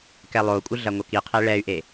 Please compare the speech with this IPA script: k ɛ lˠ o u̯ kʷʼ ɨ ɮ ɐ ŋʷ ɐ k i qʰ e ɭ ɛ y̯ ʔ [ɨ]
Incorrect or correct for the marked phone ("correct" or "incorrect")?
incorrect